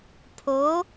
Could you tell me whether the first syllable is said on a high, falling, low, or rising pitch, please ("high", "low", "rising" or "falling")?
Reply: rising